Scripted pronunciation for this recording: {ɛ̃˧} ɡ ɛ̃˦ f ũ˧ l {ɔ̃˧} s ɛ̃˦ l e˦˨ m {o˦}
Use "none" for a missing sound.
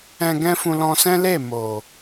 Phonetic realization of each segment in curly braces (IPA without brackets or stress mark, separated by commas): ɛ̃˧, ɔ̃˧, o˨